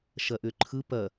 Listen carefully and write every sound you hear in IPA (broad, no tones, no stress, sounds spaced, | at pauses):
ʃ ɐ ʔ ʏ ǃʰ ɯ p ɐ